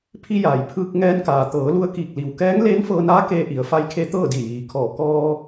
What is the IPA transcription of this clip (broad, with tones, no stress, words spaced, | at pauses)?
pʰi˧jaː˩j pʰɯː˧k̚ŋɛː˧nkaː˩ t̪ɤː˩˧lu˧ə̯kiː˧˩k̚ li˩wkɛː˧˥ŋ leː˧˥nfɤː˧naː˧˥ keː˧ʔi˩˧ə̯fa˧˥jkʰe˧˥ t̪ɤː˥˨di˧˩jiː˩˧ kʰɔː˧˩ kɔː˧